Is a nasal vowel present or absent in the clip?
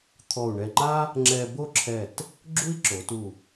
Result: absent